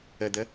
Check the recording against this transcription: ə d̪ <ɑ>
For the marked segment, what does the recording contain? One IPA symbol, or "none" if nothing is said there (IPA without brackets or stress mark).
ə